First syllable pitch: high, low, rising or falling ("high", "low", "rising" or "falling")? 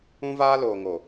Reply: high